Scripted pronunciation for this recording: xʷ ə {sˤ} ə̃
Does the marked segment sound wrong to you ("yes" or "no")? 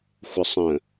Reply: no